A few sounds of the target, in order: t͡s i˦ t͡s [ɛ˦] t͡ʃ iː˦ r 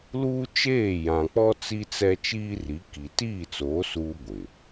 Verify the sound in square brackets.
correct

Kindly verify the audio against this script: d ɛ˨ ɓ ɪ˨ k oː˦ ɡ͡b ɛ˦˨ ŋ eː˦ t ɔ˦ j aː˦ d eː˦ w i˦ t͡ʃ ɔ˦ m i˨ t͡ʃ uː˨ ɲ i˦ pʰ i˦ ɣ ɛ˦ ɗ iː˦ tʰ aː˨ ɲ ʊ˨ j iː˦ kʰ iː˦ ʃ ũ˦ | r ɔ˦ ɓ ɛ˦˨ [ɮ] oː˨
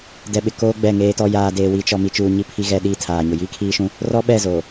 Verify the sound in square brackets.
incorrect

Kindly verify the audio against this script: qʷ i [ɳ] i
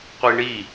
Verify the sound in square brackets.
correct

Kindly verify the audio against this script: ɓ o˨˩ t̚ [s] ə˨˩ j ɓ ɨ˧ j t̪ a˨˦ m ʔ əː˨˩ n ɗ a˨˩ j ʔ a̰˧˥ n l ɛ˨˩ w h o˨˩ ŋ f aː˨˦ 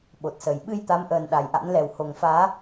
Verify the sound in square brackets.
correct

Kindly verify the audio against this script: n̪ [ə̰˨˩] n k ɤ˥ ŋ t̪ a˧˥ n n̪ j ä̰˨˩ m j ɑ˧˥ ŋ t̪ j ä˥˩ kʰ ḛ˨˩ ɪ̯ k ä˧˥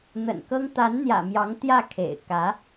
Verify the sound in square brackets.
correct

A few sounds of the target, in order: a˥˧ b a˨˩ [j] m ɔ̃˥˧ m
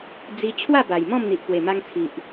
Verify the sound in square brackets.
correct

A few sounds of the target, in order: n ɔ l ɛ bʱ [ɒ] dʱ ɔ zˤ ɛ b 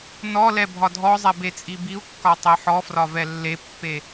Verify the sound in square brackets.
correct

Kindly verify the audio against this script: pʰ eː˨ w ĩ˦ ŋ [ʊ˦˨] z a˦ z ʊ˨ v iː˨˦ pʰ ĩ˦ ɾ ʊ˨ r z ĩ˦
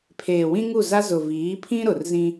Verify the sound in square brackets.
incorrect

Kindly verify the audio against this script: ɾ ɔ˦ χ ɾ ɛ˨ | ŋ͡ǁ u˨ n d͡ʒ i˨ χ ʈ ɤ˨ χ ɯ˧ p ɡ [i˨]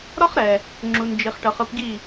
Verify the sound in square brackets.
incorrect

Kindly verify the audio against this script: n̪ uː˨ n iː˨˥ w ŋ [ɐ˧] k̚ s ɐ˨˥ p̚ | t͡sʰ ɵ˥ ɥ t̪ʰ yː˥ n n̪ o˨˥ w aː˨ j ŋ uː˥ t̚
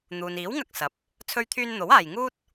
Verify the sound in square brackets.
correct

